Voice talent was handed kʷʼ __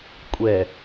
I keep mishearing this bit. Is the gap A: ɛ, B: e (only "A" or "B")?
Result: A